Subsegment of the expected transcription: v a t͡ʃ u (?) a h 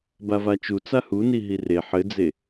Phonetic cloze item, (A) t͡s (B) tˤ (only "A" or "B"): A